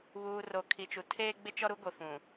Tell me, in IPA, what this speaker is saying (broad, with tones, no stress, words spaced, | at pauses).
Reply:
βuː˨ ro˨kʰi˨t͡ʃu˨ tʰeː˦ɡ͡bɪ˦t͡ʃɔ˦ɾu˦ ɡʷe˨fũ˨